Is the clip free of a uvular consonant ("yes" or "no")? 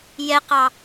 no